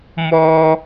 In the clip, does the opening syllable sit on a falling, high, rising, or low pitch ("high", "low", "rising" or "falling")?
high